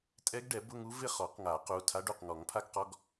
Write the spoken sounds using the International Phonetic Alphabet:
tʼ ɛ˦˥ ɡ ɖ ɛ˨˩˦ b ʊ˧˥˧ ŋ u˦˥ v ɪ˥˨ χ ɔ˨˩˦ q ŋ a˨˩˦ q u˩˧˩ tʰ a˦˥ ɖ u˩˧˩ q ŋ ɔ˨˩˦ ŋ pʰ a˦˥ ɡ q ɔ˧˥˧ ɡ

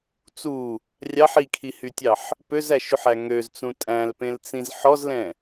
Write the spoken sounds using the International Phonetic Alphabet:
t͡s u | rʲ ɑ ħ i kʰ i h y tʲ ɑ ħ | p ø z æ ʃ ʉ ħ æ ŋ ø z t͡s ũ tʼ æ̃ l p ẽ l t͡s ĩ z ħ ɔ z l ɛ̃

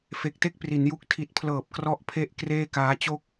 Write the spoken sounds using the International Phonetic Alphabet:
f e˨˩ k̚ t e˥˩ k̚ p r i˩˦ n j u˦˥ k̚ tʰ i˨˩ t̚ pʰ l ɤː˨˩ p̚ k r ɔ˦˥ ʔ pʰ e˦˥ ʔ k r eː˥˩ k aː˦˥ t͡ɕ o˥˩ k̚

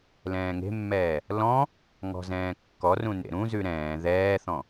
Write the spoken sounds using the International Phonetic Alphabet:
l ɛ̃ː ŋ e̤ mː ɛː | l ɔ̃ | ŋ ɔ̤ z ɛ̃ː kː ɔ r ũ n ḛ ɾ ũ z ʉ ɾ ɛ̃ː ð ɛː θ ɔ̃

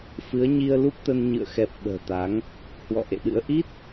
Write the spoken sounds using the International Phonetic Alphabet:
f ɨ˨˦ ə̯ ɲ i˧ ə̯ l u˦˥ p̚ t̪ ə˧ n ɲ ɨ̰˧˨ ə̯ x ɛ˨˩ p̚ ɓ ə̤ː˨˩ t̪ a˨˦ ŋ | h w ɔ̰˧˨ ʔ ḛ˧˨ ɗ ɨ̰˧˥ ə̯ ʔ i˦˥ t̚

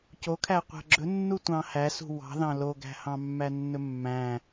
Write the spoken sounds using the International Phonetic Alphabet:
c o kʰ æ qʷ æ̤ ɡ͡ǁ ɵ nː u tʷ ɑ̃ h æ s ṳ w ɑ̤ ð ɑ̃ l o ɡ æ̤ h ɑ̃ mː æ nː ɵ mː æ̃

